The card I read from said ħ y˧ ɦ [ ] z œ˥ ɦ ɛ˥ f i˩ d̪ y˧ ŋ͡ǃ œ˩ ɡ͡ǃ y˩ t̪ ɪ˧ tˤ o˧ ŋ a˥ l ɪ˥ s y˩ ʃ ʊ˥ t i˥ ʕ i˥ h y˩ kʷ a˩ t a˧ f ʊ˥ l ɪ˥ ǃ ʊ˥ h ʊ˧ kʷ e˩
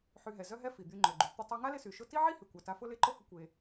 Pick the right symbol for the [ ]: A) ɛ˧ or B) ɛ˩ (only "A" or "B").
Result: B